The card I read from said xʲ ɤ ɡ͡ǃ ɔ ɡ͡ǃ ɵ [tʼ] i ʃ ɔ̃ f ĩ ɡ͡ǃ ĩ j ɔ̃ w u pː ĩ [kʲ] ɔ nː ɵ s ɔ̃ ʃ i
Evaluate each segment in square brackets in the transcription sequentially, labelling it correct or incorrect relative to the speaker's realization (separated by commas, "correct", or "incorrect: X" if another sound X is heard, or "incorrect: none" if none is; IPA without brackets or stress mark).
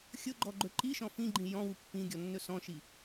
incorrect: ǃ, incorrect: ɡʲ